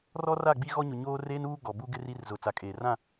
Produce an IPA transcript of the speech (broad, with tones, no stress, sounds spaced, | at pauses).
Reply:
r ɔ˦ r a˦˨ ɡ͡b i˦ ɣ ɔ˦ ɲ ʊ˨ ɲ oː˦ r eː˦ n uː˦ ɡ ɔ˨ b u˦ ɡ ɪ˦ r i˦ r z ʊ˨ t͡s a˨ kʼ eː˨ r ã˦˨